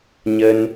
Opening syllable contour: high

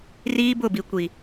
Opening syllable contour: high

